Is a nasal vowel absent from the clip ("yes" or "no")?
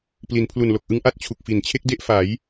yes